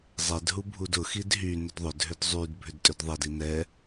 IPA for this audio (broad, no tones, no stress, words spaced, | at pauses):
zˤɛdɦu bʱudʊxid ɦy nʏdðˤʏdɦʏd zˤyd bʱʏdtʼʏdðˤɛdi nɛ